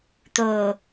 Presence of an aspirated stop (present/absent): absent